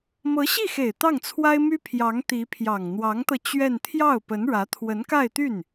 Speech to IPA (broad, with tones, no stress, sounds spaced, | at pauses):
m ɤ˧˥ ɕ i˥˩ x e˨˩ ɪ̯ t̪ ɑ˥˩ ŋ t͡sʰ w a˥ ɪ̯ m y˥ pʰ j ɑ˧˥ ŋ t̪ i˧˥ pʰ j ɑ˨˩ ŋ n̪ w ɑ˧˥ ŋ t̪ ɤ˧ t͡ɕ ɥ ɛ˥˧ n t̪ʰ j ɑ˥˩ ʊ̯ p ə˧˥ n ɻ ä˧˥ t̪ʰ w ə˧˥ n k a˥˧ ɪ̯ t̪ y˥˩ n